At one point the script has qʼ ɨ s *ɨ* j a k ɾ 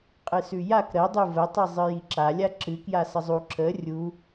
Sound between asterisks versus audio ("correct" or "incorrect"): incorrect